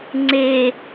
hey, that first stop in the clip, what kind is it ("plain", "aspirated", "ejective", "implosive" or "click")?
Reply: click